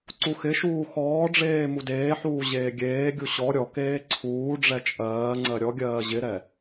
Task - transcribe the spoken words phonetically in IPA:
ǀ u x ɪ ʃ uː x ɔː ɖ͡ʐ eː m u d eː ħ uː ʑ eː ɡʲ eː ɡʲ u ɕ ɔ ɾʲ ɔ k eː ǀʰ uː ɖ͡ʐ ɛ t͡ʃʼ ɜː ŋ͡ǀ ɜ ɾʲ ɔ ɡʲ ɜː ʑ ɪ ɾ ɛ

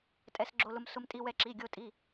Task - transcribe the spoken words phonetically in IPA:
tʼ ɛ˧ s ɡ͡ǁ o˧ l ʊ˧ m s ʊ˧ m tʼ i˧ w ɛ˧ ǁ i˩˧˩ ɡʲ o˧ tʼ i˩˧˩

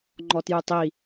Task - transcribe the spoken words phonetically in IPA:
ŋ͡ǃ ɔ t j u tˤ i

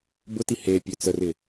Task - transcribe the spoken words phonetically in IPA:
b ʊ t i h e pʲ ø t͡s ə r ɪ

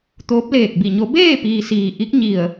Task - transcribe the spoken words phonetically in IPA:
t̪ oː˧˥ p̚ l eː˧˩ k̚ b i˧˩ ɲ o˧˥ b eː˥˨ p iː˩ s iː˩ ʔ i˧˥ k̚ ɲ i˧˩ ə̯

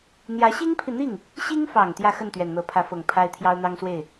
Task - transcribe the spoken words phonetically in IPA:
n̪ j ä˧˥ ɕ i˥ ŋ pʰ i˨ n̪ i˥˩ ŋ | ɕ i˥ ŋ f ɑ˨˩ ŋ t̪ j ä˥˧ x ə˥˩ n t̪ ɥ ɛ˨˩ n n̪ ɤ˧˥ pʰ ä˧˥ f ɤ˨˩ ŋ pʰ a˥ ɪ̯ t̪ʰ j ɑ˥ ʊ̯ n̪ ɑ˥ ŋ s w e˥˩ ɪ̯

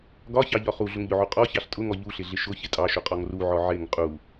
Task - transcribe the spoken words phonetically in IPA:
ɡ ɒ ç ɑ ʎ ɒ χ u ɮ ʊ ŋ ʎ ʊ ʕ u qʼ ɔ ç ɑ ɬ tʼ ʊ ŋ ɔ ʎ u ɬ ɪ ɮ ɪ ʃ ʊ ç ɪ tʼ ɑ ʃ ʊ qʼ ɔ ŋ r u ʕ ɔ ʕ ɪ ŋ qʼ u

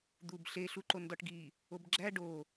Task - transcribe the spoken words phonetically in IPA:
d̪ u b ɬ e ɬ u ǃ o n d ɒ ʈ ɡ i | o b ɡ͡ǁ æ ɖ o

